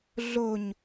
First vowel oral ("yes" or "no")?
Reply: yes